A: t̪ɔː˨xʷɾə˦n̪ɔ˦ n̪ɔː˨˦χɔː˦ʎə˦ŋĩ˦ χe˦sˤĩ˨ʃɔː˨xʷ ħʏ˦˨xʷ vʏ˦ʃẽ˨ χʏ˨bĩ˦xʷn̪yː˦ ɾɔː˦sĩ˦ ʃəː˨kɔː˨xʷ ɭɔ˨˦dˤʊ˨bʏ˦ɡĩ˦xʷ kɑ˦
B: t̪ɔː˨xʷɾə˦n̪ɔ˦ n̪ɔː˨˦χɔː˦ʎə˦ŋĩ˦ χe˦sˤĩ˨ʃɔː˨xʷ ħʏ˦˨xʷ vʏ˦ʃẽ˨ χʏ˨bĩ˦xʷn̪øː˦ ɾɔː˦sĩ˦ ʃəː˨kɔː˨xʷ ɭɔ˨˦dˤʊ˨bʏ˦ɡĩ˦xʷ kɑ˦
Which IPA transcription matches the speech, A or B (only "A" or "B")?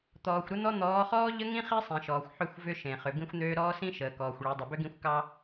B